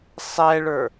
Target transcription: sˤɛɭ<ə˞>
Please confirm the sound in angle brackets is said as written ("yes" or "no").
yes